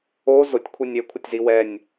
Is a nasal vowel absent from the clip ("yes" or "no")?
yes